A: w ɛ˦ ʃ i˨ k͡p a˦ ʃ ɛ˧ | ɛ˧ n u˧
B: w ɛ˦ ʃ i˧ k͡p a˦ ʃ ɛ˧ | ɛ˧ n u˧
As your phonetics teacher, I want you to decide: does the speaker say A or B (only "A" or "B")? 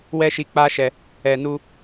B